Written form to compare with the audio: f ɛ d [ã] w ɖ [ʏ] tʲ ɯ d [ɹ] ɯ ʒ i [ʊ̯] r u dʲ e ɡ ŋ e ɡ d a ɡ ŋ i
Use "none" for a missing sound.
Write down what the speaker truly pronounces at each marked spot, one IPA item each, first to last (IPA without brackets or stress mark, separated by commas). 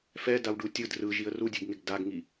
a, u, r, ə̯